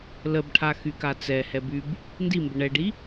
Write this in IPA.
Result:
ləbʈʰaxyka t͡sɛhɛb yb | ndimbə ɳɛɖi

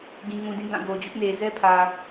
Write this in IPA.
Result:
ɡĩ˨ŋũ˨dĩ˦˨ dã˦˨ ɡo˨d͡ʑʊ˦ʔne˨ zɛ˦pʰä˨

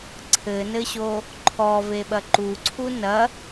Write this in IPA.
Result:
ǀʰɘnɘɕo | ǃʰɔveɓɐ ǃuǀʰu nɐ

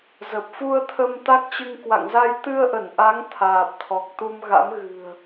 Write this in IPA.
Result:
zə˨˩p̚fu˧ə̯t̪ʰə˧m t̪a˦˥k̚t͡ɕɨ˧ŋ kwa̰˧˨ŋza˧j t̪ɨ˧ə̯ʔə˧˩nʔa˨˦ŋ t̪ʰaː˨˩p̚t̪ʰɔ˨˩k̚t̪u˧mɣa̰˧˥m ɣɨ̤˨˩ə̯

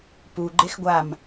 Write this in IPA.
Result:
pu ɡ͡ǃexɡʷam

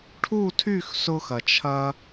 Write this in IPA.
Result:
ʈʰu˥˩tʰy˥˩x sʊ˧xɐ˩t͡ʃʰɐ˧

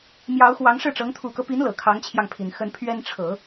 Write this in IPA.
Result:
mjɑ˧˥ʊ̯xwɑ˧˥ŋ ʂɻ̩˥˩ʈ͡ʂɤ˧˥ŋ t̪ʰu˨˩kɤ˦pi˧˥n lɤ˨˩kʰɑ˧˥ŋt͡ɕʰjɑ˧ŋpʰi˨˩n xə˧˥npʰɥɛ˥n ʈ͡ʂʰɤ˨˩˦

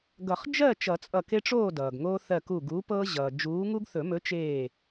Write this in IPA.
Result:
ɡʌ˨˩˦χd͡ʒɜ˥˨ t͡ʃʌ˨˩˦t͡sʼʌ˧˩ke˦ʈ͡ʂoː˥˨ dʌː˩ɡŋoː˦ θɜ˧˩ku˧˩ɡuː˨˥pɤː˦ ʑʌː˩d͡ʒuː˨˥ ŋu˦ɡθɵ˨˩˦mɵ˨˥ t͡ʃeː˧˩

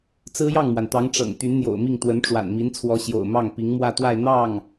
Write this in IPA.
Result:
t͡sɹ̩˥jɑ˥˩ŋmwa˩nt̪ɑ˧˥ŋ ʈ͡ʂɤ̰˨˩ŋt̪y˧˥nn̪jo̰˨˩ʊ̯mi˥˩ŋ t̪wə˧˥nʈ͡ʂwa̰˨˩nmi˧˥nt͡sʰwɔ˧˥ ɕjo̰˨˩ʊ̯mɑ˥˩ŋ pi˧˥ŋmwä˥˧ t̪wa˥˧ɪ̯ n̪ɑ˥˩ŋ

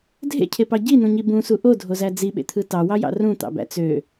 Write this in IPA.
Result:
dʱḛcʰepɑ ɟinũɲi bũsu ʔodʱozæ d͡ziɓḛt̪ʰɯ tɑwɑjɑ̰ rũt̪ɑ̰bæ̰ t͡sø

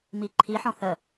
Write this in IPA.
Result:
miǃʰiħɔ̃ θə

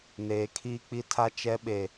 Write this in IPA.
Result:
neː˨ kʰiː˦k͡pi˦tʰa˦ t͡ʃɛ˦ɓe˨

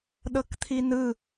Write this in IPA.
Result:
ɗɤkt̪ʰinɯ

